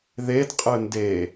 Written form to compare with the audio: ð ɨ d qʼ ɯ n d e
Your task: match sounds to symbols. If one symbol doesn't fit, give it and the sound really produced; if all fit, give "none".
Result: ɨ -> e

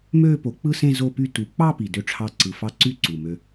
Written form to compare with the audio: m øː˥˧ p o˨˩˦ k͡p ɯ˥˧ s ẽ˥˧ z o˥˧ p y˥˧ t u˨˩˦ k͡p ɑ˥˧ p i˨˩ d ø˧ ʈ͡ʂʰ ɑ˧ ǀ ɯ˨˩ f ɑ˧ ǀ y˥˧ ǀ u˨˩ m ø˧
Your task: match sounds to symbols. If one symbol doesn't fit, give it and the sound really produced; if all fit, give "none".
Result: none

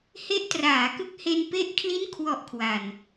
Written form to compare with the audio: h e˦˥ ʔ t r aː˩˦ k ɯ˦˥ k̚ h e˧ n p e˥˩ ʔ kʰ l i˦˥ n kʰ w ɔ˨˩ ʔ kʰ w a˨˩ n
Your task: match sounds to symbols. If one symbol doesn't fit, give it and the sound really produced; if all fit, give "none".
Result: none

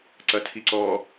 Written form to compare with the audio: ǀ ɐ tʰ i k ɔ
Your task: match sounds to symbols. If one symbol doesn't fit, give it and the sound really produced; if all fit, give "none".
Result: k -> ǀ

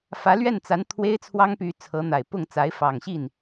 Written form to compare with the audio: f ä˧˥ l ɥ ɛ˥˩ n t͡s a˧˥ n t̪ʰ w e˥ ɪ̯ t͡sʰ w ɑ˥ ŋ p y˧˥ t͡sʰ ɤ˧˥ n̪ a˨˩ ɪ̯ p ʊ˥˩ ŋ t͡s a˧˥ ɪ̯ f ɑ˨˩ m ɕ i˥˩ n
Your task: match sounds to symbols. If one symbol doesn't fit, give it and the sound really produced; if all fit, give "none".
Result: m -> ŋ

